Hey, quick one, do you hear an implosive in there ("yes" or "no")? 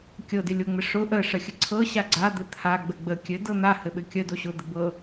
yes